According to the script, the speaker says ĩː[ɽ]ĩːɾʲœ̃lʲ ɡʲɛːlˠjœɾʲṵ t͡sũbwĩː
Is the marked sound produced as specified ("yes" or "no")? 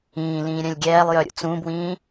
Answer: no